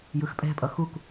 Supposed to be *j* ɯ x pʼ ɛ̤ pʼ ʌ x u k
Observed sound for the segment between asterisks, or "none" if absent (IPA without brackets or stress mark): j